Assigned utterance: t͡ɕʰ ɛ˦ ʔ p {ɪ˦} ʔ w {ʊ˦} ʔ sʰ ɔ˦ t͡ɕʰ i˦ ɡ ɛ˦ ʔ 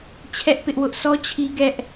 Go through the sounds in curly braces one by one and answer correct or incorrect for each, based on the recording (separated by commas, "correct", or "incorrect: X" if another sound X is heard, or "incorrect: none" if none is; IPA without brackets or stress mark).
correct, correct